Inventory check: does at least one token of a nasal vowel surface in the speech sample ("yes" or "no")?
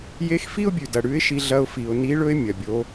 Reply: no